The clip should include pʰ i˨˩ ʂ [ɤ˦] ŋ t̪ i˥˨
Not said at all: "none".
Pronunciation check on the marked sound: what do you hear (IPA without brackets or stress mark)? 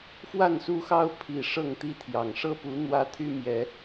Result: ɤ˥˨